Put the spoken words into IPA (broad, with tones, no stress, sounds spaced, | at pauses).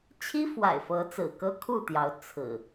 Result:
t͡ɕʰ i˦ f w a̰˨˩ ɪ̯ f ɤ˨˦ t͡s ɹ̩˨˩ k ɤ˦ kʰ u˥˨ t̪ j ɑ˨˦ ʊ̯ t͡sʰ ɹ̩˨˩